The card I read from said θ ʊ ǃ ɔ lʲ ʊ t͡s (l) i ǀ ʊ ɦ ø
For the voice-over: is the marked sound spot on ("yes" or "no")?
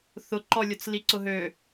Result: yes